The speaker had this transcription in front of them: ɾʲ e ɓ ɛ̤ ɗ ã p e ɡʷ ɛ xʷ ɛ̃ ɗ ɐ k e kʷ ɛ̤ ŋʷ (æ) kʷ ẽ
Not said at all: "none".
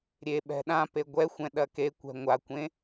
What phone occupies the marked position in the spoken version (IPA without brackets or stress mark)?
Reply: a